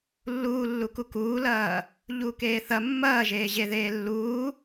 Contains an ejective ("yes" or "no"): no